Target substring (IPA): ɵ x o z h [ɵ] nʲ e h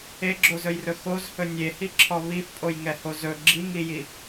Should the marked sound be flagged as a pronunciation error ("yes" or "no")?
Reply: no